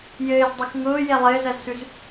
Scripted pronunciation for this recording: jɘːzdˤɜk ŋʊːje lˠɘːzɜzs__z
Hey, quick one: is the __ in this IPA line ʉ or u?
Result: ʉ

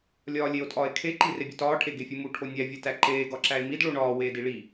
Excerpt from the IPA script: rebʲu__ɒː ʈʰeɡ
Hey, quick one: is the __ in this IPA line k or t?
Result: t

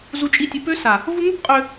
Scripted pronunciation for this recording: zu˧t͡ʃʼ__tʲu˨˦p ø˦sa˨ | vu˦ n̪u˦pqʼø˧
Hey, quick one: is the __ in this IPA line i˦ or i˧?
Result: i˧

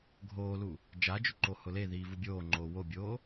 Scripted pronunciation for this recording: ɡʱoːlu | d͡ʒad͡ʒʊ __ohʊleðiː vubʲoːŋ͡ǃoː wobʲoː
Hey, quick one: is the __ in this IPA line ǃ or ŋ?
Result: ǃ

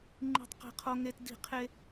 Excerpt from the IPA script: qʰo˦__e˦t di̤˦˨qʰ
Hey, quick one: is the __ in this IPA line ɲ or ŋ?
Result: ŋ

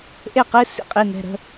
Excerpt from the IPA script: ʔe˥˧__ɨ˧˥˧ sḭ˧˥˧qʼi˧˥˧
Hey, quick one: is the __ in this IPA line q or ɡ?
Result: q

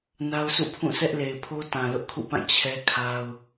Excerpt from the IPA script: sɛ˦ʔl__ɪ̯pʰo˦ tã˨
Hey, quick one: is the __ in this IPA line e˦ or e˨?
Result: e˨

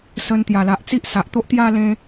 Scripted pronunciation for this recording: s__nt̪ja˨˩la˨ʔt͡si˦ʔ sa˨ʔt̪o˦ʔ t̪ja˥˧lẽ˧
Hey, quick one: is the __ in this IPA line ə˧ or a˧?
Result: ə˧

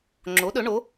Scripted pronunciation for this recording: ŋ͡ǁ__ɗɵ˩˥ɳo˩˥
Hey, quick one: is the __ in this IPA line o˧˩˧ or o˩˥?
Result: o˩˥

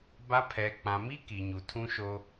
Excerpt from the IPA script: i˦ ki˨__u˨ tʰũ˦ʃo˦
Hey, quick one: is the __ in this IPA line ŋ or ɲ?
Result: ɲ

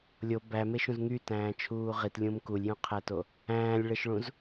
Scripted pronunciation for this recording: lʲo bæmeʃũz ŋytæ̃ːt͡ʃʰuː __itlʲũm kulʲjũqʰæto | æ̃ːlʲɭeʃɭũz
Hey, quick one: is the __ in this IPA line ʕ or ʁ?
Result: ʁ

